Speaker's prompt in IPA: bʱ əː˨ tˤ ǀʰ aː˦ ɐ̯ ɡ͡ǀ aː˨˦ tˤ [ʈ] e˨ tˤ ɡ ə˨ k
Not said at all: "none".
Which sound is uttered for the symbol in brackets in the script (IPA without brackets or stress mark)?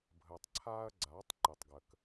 ǃ